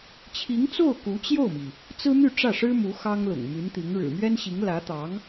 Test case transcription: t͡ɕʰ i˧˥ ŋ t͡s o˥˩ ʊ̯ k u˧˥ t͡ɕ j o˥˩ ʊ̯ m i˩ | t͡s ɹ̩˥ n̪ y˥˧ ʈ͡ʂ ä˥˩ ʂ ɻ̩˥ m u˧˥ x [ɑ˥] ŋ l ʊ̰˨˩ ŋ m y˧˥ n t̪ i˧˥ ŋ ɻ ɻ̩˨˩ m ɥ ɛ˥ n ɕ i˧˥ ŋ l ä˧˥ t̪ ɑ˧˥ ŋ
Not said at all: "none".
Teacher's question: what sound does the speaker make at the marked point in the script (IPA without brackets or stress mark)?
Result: ɑ˥